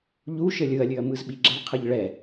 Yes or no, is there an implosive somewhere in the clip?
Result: yes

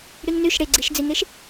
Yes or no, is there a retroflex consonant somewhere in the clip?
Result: yes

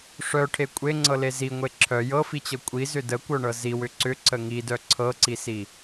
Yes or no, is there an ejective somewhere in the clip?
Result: yes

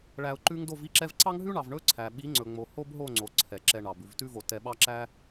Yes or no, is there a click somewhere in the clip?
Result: yes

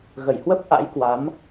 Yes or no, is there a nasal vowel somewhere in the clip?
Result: no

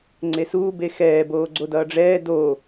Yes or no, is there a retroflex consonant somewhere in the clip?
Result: yes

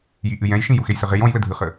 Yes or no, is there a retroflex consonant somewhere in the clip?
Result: no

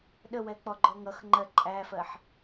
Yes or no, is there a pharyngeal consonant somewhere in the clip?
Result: yes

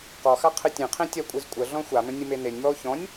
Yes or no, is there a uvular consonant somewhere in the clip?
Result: yes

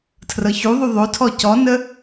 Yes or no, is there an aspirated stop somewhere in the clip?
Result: yes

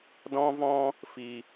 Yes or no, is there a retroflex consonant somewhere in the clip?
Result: no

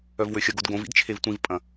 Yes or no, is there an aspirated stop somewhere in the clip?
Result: yes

